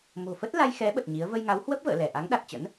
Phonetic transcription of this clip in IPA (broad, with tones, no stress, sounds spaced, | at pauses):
m o̤˨˩ f ə˦˥ t̚ l a˧ j x ɛ˨˦ ɓ ə˨˩ t̚ ɲ i˨˦ ə̯ v ə˧ j ŋ a˨˦ w h w ə˦˥ p̚ v ə̰ː˧˨ l ɛ˧˩ ʔ a˨˦ ŋ ɗ a˨˩ t̚ t͡ɕ ə̰˧˥ n